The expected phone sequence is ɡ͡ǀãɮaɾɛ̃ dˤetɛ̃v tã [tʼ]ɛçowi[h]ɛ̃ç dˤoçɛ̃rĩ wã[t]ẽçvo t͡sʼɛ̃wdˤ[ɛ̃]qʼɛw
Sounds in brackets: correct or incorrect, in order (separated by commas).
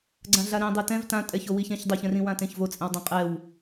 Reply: correct, incorrect, correct, correct